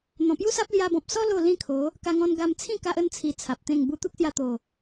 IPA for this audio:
n̪ɔ̃˨˩pju˦sa˦p̚ lja˧bɔ̃˨p̚sɔ˦ lo˥˧lĩ˥˧kʰo˨˦ | ka˧ŋɔ̃˧n ɡa˧mt͡sʰĩ˥˧ ka˦ʔə˦n t͡sʰi˧t͡sʰa˨p̚t̪ẽ˥˧ŋ bu˧t̪u˦k̚sja˧t̪o˨˩

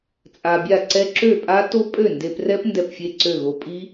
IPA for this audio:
t͡sʼa˧bʲa˥˩ǀɛ˦˥ ǁø˥˩pʼa˦˥ to˦˥ pʼø˥˩nde˧prɛ˦˥p ndɛ˥˩pfʲe˥˩ǀø˥˩ɣo˧ pʼi˦˥

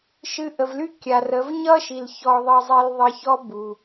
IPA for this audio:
ʃɨ˧ ʔə˨vly˦ kʲa˨rə˨˦v ɲʌ˦ʃi˨l çɔ˧ðˤʌ˧zˤi˧l ðˤə˧çɔ˦ bu˨

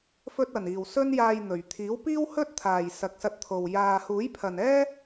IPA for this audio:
fɵ˧t̚ɐ˨˩niː˨˩w sɵ˧njaː˨j n̪ɵ˨˩ɥt̪ʰiː˨˥w piː˥whɵ˥t̚t̪ʰaː˨˩j sɐ˨k̚sɐ˧t̚t̪ʰo˨˩w jaː˨ huː˨˥jpʰɐ˨nɛː˥

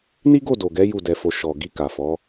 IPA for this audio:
ni˦ɡo˦˨do˨ɡɛ˨˦ ju˦˨dɛ˧fo˧ ʃɔ˨ ɡi˧ka˨fɔ˨˦

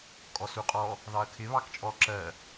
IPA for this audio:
kʼɔsuqʼɔ | ðɑɐ̯kʰɪ βɑkt͡ʃʼɔ ǁɜ

